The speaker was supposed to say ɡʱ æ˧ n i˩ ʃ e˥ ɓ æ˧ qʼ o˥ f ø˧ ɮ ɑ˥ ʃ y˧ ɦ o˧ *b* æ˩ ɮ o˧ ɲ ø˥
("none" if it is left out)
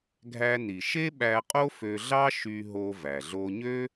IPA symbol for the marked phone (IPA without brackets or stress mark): v